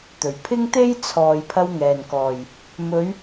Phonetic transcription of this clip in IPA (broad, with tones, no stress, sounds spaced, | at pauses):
t̪ ɵ˨˩ ɥ pʰ ɪ˥ ŋ t̪ e˥ j t͡sʰ ɔː˨ j pʰ ɐ˧ w ŋ ɛː˨˩ n k ɔː˨˩ j | m ɵ˨˧ ɥ